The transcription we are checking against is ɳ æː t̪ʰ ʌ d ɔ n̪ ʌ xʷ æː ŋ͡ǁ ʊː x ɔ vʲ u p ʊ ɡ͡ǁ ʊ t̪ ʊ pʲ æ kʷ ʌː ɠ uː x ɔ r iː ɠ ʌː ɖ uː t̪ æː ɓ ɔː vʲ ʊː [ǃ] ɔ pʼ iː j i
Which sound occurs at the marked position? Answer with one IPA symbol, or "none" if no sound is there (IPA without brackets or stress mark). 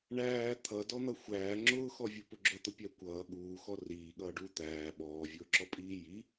ǁ